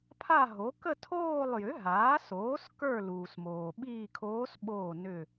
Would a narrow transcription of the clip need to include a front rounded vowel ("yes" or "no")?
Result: yes